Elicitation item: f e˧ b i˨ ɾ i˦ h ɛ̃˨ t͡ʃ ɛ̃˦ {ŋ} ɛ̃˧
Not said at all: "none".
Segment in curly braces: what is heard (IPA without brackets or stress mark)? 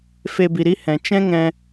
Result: ŋ